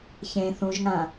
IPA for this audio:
ç ẽ θ ũ ʒ ŋ ã

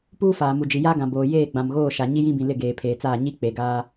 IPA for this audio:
p uː˦ f aː˨ m u˨ d͡ʒ i˨ j a˦ ɡ ã˨ b oː˨ j eː˦˨ ɡ͡b ã˨ m ɣ oː˦˨ ʃ a˨ ɲ i˦ j ĩ˦ b ĩ˨ l ɪ˦˨ ɡ eː˨ pʰ eː˨ t͡s aː˦˨ ɲ i˦ k͡p e˨ ɡ aː˦

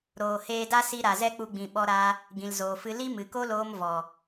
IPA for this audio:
ɾ oː˨ h eː˧ d a˦ s i˧ ɾ a˨ z ɛ˦ k͡p u˧ ɡ͡b ĩ˨ ɓ ɔ˧ ɾ aː˧ | ɡ ĩ˨ l z oː˨ f ɨ˧ l i˦ m ɨ˨ k o˦ l oː˧ m v ɔ˨

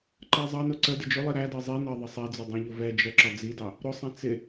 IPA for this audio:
ǃ ɜ zˤ ɑ n ʊ ǀ ə d ɪ d͡ʒ ʊ lˠ i ɾ æ d ɜ zˤ i n ɜ ðˤ ə sˤ ɛ d͡z ʊ dˤ ɛ̃ ʎ ʊ v ɛ d͡ʒ ɜ ǁ ɒ d͡z i d ɑ | ɾ ʊ sˤ ɛ̃ t͡s ɪ

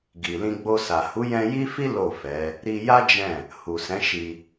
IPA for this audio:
ɡ i˨ l ĩ˧ ɡ͡b o˧ s a˨ h u˨˦ j ɛ̃˧ j i˦ f i˦ l o˦˨ f ɛ˨˦ | ɾ i˧ j a˦ d͡ʒ ɛ̃˦˨ | h u˨ s ɛ̃˨˦ ʃ i˧

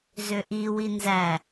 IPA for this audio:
z ø ʔ i w i n z æ

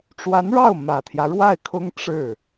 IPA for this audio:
ʈ͡ʂ w a˧˥ n ɻ ɑ˥˩ ʊ̯ m ä˨˩ t̪ʰ j ä˦ ɻ w a˥˩ ɪ̯ kʰ ʊ˥ ŋ ʈ͡ʂ ɻ̩˥˩

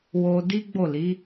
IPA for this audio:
w o˧ d i˦ ɡ͡b o˦˨ l i˨˦

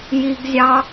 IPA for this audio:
j i ɡ zʲ ɑ

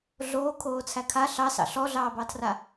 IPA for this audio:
ɮ oː kʰ oː t͡sʰ æ kʰ a ɬ ɑ s ɑ̰ ɬ ɔ ɮ ɑː b ɑ tʰ r a

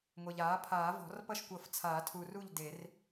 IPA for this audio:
ŋʷ e˨ ʎ aː˩˥ pʰ aː˨˩˦ v ɔ̤˨˩˦ r p ʌ˥˨ ʃ kʷ ʌ˨˩˦ f t͡sʰ aː˨˩˦ tʰ u˨ r u˥˨ ʎ d e˨˩˦ r

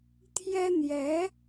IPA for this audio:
t̪ʰ j ɛ˥ n̪ j ɛ˧˥

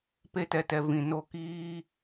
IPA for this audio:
p e˦ t ɛ˨ t ɛ˨ v ĩ˨ n o˧ k iː˦

